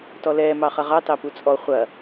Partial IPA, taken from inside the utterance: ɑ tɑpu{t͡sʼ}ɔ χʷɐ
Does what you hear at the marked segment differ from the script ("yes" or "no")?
no